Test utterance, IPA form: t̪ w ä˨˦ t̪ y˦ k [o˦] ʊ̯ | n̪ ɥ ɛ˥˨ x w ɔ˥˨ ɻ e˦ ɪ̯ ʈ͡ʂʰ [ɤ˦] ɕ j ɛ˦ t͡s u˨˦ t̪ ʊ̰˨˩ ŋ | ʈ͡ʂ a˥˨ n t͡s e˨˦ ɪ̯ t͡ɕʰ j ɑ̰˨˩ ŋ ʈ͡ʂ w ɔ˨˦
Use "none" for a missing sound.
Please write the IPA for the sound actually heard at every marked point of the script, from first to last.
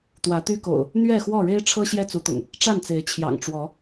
o̰˨˩, ɤ˦

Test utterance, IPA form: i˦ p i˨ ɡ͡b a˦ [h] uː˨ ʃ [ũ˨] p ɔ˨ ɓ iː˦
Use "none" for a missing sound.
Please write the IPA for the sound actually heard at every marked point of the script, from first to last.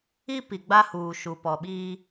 h, u˨

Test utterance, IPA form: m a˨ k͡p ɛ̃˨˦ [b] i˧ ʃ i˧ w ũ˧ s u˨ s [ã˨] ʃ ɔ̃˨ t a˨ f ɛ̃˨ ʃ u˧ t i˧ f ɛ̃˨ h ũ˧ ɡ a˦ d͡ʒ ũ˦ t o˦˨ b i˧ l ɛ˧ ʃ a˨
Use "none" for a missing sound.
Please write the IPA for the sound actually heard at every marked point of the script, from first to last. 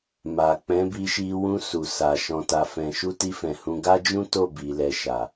b, a˨

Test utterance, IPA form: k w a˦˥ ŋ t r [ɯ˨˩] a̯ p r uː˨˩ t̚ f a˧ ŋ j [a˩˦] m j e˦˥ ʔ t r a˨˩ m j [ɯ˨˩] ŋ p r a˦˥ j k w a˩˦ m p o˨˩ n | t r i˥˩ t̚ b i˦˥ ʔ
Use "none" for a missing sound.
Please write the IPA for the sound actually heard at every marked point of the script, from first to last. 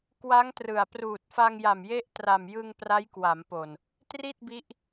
ɯ˨˩, a˨˩, ɯ˧

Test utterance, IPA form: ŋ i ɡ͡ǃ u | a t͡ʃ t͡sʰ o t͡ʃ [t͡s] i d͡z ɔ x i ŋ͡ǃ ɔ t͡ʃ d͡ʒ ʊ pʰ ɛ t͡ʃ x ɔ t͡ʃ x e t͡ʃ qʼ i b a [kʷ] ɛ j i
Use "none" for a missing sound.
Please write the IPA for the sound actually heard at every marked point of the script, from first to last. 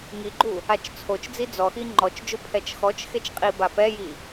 d͡z, p

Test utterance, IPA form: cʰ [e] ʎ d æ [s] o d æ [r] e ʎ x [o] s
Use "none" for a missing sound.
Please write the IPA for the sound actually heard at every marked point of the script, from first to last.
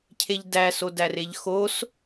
e, s, r, o

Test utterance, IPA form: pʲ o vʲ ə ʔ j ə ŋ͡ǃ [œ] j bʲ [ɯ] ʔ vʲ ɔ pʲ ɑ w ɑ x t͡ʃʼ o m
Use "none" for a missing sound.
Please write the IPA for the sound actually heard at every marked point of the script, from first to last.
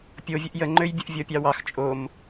ø, ə

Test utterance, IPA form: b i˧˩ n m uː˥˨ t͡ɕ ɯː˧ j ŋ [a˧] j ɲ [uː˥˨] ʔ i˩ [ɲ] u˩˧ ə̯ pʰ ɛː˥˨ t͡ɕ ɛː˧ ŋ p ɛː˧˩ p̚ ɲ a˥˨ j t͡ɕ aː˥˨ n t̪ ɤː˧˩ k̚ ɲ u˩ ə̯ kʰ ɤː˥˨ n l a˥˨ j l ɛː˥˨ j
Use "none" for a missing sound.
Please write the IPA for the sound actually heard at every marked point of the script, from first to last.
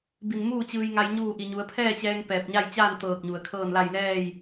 a˧, uː˥˨, ɲ

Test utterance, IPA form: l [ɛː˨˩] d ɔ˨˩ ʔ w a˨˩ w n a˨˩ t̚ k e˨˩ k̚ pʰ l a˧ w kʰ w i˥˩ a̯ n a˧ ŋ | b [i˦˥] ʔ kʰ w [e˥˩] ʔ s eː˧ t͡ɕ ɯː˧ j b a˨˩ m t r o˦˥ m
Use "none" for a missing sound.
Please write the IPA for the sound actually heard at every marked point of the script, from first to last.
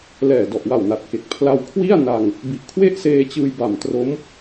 ɛː˨˩, i˨˩, e˥˩

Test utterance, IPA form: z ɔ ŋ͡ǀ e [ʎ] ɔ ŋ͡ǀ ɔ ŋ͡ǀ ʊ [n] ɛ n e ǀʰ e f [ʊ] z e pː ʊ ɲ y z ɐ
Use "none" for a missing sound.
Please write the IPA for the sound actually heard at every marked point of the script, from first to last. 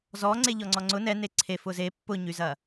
ʎ, n, ʊ

